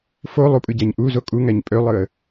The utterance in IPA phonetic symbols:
fo lˠupʼɯɟæɲ ʔu zokʼuŋæɲ pʼølˠɯə̯

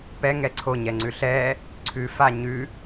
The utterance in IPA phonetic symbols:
pɛŋɛ ǀʰoɲɛŋ͡ǀʉ ɬɛ | ǀʰʉfa ɲʉ

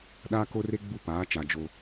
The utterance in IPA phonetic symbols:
ɗaː˦ko˦re˦ɡ͡bu˦˨ paː˨˦t͡ʃa˨ d͡ʒo˦

